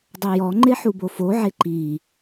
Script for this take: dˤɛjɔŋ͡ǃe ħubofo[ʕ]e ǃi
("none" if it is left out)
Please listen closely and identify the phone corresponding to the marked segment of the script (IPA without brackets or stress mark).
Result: ʕ